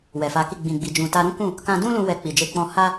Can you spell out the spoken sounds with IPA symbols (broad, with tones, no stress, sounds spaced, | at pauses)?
w ɛ˨ f a˨˦ k i˦˨ ɡ͡b ĩ˨ ɡ͡b i˨ d͡ʒ ũ˨ t a˧ ɾ ũ˦ k ũ˦˨ | k ã˧ d ũ˦ l ũ˧ w ɛ˧ k͡p i˨ d͡ʒ e˧ k͡p ɔ̃˧ h a˦